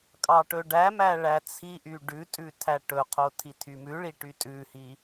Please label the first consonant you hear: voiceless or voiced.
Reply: voiceless